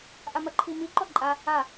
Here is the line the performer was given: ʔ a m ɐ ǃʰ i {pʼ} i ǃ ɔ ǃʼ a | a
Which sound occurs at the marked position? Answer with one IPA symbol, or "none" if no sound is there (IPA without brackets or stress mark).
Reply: m